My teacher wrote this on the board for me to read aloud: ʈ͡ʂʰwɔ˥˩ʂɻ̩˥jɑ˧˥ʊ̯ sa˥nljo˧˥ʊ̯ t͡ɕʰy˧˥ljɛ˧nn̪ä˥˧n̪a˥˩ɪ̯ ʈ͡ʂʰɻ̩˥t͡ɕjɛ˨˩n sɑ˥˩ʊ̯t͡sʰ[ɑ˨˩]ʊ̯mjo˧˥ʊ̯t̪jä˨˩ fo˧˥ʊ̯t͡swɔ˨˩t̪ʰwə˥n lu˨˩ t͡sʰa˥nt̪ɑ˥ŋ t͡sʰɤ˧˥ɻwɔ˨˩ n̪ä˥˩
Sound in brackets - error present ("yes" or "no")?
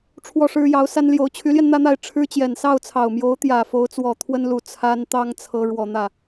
no